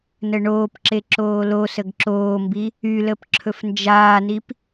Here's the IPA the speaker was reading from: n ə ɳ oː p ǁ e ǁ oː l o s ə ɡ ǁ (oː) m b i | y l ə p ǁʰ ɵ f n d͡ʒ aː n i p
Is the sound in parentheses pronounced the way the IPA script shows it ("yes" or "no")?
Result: yes